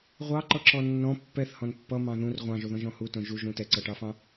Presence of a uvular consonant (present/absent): present